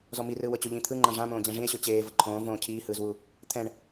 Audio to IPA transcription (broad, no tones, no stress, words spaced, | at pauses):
zɔmirɯː wɤt͡ɕoʎĩ t̪ʰɯŋ͡ǃã ʐãmõː d͡ʑɛ̃ʐĩe̯ɕo t͡ɕeːvɤ ǃʰõːvõː cʰiːhɯːzwu | t̪ʰɛ̃ɳ